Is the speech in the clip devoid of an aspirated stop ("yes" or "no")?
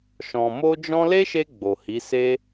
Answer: yes